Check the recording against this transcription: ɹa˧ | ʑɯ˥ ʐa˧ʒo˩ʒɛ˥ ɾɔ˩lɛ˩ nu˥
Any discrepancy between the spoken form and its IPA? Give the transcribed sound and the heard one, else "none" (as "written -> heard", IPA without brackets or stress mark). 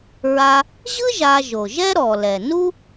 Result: ʐ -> ʒ